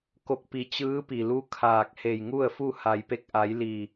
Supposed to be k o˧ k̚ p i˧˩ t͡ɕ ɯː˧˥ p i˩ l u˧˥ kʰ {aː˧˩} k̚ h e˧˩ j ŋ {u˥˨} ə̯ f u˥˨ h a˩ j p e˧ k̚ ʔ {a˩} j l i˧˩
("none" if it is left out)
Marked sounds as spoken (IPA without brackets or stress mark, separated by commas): aː˧˩, u˥˨, a˩˧